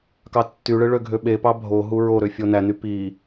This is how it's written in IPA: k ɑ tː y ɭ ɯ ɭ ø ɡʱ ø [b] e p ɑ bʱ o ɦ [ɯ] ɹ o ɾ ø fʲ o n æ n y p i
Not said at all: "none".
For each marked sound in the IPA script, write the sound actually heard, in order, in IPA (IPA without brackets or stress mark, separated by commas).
ɓ, u